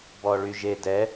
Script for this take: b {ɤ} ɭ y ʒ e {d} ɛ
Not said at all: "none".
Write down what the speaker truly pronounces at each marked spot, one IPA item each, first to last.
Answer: ɔ, d

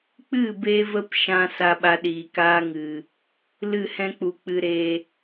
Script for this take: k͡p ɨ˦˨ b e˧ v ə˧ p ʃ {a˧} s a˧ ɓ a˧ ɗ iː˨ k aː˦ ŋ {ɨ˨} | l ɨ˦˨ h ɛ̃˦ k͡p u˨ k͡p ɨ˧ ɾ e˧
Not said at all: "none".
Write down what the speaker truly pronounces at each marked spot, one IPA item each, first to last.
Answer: ã˧, ɨ˨

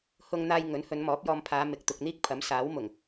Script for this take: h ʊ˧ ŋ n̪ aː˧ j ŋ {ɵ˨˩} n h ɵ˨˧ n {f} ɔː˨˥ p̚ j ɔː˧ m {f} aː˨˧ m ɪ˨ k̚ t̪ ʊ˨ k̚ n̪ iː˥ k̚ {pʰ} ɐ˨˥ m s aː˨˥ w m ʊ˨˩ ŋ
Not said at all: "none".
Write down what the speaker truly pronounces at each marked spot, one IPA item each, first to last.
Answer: ɵ˨˥, m, pʰ, pʰ

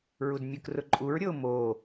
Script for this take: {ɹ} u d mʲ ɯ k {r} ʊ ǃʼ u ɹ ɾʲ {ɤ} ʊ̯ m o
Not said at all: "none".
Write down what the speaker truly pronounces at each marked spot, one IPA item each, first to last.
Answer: ɹ, r, ɤ

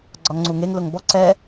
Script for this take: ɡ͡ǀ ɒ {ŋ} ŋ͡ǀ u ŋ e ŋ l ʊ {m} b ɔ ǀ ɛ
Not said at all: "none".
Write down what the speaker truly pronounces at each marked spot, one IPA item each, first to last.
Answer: ŋ, ŋ

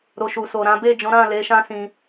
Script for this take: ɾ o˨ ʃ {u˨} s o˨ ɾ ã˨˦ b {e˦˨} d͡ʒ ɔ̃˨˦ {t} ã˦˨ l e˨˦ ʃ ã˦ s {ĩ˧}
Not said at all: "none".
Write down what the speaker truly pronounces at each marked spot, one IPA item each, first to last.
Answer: u˨, e˦˨, ɾ, ĩ˧

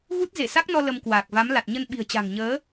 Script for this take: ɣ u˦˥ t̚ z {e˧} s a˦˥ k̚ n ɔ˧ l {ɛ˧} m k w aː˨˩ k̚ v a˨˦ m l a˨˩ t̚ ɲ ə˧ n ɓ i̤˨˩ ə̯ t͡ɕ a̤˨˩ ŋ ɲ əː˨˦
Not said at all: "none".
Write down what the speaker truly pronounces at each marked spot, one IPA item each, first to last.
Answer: e˧˩, ə˧

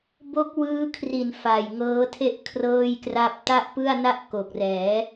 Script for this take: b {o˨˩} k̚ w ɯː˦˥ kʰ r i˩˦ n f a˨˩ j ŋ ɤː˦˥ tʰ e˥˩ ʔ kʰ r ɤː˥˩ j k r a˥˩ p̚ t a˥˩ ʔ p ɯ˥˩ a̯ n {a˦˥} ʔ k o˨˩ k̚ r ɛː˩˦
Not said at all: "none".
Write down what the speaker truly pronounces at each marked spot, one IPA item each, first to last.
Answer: o˦˥, a˥˩

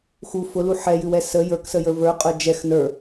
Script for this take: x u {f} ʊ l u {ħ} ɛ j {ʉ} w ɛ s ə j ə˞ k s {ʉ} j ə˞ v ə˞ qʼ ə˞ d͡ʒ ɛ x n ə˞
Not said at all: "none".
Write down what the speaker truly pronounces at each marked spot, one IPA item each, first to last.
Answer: f, ħ, ʉ, ə

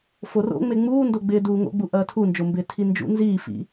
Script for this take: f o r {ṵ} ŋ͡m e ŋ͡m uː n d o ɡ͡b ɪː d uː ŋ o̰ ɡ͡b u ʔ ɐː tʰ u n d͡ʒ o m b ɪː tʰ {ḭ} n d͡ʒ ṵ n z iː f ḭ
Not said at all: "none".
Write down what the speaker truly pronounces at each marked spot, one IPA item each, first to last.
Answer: o̰, i

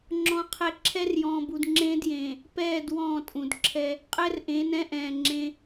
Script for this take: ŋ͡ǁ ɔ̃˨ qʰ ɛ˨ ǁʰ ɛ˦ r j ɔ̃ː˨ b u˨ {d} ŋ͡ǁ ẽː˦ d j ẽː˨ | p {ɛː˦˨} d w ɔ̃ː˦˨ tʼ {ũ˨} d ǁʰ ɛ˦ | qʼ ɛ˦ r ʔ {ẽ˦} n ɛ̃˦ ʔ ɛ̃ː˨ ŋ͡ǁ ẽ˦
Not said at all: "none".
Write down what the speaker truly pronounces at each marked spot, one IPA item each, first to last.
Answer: d, ɛː˦˨, ũ˨, ẽ˨˦

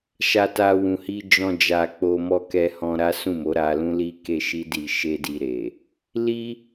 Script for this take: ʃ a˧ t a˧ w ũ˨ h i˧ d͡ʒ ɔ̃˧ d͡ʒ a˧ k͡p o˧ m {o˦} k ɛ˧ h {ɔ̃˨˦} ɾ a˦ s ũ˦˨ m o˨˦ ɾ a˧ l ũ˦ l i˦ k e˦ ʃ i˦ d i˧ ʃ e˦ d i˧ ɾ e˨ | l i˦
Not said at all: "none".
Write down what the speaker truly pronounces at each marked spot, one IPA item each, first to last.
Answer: ɔ˦, ɔ̃˧

